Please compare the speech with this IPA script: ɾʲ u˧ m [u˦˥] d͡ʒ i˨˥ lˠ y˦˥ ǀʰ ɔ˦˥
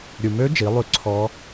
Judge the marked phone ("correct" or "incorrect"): incorrect